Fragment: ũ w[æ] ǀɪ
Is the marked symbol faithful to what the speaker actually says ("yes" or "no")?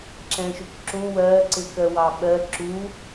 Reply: no